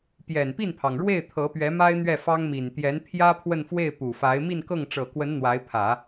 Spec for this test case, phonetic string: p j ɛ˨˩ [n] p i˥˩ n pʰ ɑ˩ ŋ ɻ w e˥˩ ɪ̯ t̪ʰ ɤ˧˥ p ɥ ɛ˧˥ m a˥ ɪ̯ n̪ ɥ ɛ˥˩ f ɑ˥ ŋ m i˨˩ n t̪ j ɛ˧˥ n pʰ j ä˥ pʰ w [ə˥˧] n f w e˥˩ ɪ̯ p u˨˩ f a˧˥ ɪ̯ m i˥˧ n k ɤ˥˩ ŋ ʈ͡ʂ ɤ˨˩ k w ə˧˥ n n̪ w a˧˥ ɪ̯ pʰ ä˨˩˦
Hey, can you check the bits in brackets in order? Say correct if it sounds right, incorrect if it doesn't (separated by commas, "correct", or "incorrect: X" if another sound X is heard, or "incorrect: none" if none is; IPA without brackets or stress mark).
correct, correct